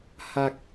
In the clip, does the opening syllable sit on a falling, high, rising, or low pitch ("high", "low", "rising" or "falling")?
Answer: low